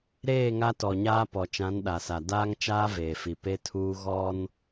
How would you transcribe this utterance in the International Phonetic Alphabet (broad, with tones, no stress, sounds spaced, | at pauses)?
ɾ eː˦˨ ŋ a˦ t ɔ˨ ɲ aː˦ p ɔ˨ t͡ʃ ã˨˦ n ɗ a˨ s a˨ d aː˦ ŋ t͡ʃ aː˦ v eː˨ f i˨ p e˦ tʰ uː˦ ɣ ɔ˦ n